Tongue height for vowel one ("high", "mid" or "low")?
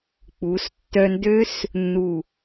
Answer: high